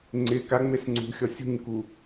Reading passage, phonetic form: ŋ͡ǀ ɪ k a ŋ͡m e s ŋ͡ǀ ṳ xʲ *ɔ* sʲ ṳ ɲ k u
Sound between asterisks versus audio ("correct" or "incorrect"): correct